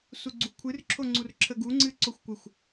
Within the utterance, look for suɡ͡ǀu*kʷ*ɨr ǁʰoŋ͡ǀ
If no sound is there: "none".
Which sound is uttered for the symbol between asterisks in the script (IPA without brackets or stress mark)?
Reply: kʷʰ